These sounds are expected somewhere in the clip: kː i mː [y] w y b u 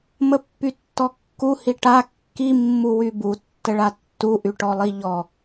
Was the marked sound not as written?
yes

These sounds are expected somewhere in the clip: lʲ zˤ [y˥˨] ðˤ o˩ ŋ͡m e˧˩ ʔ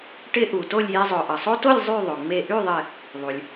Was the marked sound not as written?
no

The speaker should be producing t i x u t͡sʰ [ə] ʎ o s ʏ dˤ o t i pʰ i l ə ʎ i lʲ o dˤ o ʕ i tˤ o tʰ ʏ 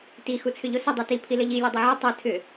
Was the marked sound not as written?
yes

